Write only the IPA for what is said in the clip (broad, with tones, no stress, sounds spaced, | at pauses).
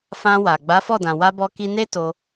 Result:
f ã˧ w a˨ ɡ͡b a˨˦ f ɔ˦˨ d ã˨ w a˧ b ɔ˧ k i˧ n e˦ t o˧